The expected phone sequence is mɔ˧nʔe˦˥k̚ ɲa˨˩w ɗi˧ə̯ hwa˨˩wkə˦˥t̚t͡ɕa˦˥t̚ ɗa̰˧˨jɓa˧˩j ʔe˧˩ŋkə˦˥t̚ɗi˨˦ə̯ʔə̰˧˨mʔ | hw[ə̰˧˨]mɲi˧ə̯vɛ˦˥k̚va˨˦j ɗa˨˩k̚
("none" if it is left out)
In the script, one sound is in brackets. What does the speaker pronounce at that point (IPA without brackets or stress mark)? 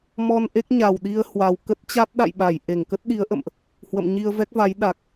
ə̰˧˨